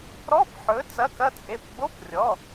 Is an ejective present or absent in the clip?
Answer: present